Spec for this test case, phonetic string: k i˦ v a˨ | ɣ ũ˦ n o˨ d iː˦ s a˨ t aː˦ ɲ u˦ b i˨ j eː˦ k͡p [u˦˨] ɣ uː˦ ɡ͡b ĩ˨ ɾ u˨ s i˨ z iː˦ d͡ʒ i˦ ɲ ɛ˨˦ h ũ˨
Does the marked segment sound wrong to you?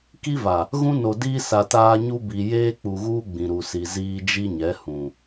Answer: yes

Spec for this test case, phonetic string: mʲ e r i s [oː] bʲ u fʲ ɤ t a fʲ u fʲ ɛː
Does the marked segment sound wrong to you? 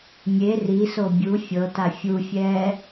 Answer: yes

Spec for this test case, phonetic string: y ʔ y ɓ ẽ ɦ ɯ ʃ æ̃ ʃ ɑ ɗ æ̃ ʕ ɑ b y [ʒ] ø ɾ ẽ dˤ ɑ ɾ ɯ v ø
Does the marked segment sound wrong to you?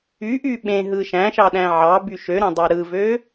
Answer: yes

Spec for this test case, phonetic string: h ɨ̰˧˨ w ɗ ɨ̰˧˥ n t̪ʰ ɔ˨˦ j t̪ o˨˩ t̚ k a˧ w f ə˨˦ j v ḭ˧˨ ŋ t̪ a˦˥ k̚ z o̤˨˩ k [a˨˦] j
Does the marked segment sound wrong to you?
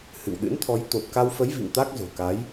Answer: no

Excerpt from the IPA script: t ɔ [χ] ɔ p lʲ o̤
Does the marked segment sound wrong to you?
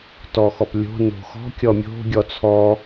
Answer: yes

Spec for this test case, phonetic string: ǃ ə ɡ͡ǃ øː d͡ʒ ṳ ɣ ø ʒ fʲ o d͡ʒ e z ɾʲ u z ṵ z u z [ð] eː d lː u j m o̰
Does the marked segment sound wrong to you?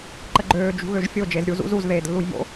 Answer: no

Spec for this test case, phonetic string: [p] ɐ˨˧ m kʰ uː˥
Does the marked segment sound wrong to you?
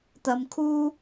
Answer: yes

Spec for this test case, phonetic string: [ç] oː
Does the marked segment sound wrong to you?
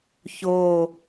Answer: no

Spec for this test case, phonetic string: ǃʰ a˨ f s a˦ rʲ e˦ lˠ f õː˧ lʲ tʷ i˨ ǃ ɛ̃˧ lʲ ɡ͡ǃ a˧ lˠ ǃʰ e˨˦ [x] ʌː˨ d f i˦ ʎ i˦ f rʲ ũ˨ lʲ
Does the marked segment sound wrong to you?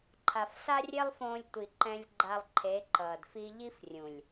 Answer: yes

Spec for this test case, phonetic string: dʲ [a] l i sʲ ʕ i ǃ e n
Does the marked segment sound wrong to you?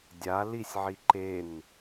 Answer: no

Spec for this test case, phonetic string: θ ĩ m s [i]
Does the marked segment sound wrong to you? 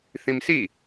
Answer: no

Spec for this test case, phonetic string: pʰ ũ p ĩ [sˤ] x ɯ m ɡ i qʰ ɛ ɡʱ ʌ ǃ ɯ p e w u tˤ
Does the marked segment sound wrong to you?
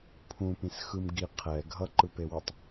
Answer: yes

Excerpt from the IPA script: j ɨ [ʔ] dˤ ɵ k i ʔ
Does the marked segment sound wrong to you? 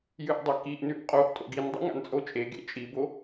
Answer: no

